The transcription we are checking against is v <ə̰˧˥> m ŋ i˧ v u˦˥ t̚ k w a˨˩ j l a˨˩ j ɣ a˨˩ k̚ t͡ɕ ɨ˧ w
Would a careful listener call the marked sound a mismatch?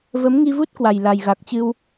yes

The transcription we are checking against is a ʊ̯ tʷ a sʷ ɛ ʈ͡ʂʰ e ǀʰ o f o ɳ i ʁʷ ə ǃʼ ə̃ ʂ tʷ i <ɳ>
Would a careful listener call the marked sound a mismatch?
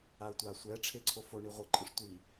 yes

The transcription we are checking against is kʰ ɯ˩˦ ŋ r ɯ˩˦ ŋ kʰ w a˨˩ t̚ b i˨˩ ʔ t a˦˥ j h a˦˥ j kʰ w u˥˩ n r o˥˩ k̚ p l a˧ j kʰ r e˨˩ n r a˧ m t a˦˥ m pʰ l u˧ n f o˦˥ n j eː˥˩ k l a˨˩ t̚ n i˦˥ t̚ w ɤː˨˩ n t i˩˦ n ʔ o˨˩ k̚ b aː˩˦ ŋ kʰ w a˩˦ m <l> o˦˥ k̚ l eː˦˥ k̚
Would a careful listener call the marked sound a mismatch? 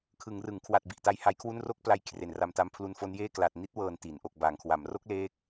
yes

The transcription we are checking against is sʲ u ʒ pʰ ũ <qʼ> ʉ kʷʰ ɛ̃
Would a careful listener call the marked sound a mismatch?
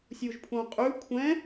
no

